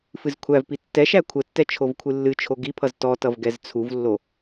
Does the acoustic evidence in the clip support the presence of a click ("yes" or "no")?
no